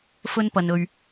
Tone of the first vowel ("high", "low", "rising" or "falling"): high